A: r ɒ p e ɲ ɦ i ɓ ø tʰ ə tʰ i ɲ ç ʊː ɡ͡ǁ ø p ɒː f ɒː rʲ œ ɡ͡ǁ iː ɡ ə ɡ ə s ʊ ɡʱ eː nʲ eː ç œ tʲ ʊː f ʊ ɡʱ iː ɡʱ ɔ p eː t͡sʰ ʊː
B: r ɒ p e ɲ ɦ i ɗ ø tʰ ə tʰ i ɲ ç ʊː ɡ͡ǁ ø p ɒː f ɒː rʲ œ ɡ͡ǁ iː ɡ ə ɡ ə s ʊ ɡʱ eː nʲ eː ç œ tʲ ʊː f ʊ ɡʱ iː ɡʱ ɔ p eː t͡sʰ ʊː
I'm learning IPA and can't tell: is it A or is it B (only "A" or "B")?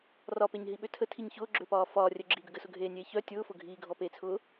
A